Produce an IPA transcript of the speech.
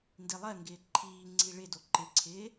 ndilˠɜŋɡɪː ǃʰiːŋ͡ǀi ɭɪdo ǃɪǀʰɪː

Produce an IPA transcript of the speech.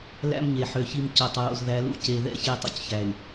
læ̰˦mɲe˨ ħø˨çi˦m co˨tˤ ɹo̰˨zðæ˨˦lṵ˦ ce˨ðɛ̰˦ çe˦tˤṵ˦cçæ˨y̯

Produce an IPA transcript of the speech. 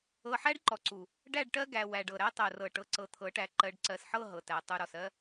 ɤ˨ħæ˦ɖǃɔ˨ǀu˨ | ɖæ˦˨ɖʈɜ˦ɡæ˨ wæ˨ɖɤ˨ɾæ˦ tˤɜ˨rɤ˨ʈɤ˨ ǀɤ˨t̪ʰɤ˨˦ʈæ˨ ǃɜ˨ɖǀɜ˨sħɤ˦˨ ɦɤ˨tæ˨ tˤu˨ɾɔ˨sɜ˦

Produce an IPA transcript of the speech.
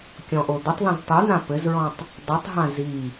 kʲɔ̃ʔod̪ətˤðãz tˤyn̪ã pɘzɹɔ̃tˤ | dˤytˤɦã zi

